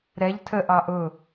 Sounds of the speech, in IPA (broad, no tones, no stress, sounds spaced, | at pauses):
ɾ ɛ ʎ tʰ ə ʔ ɑ ʔ ʊ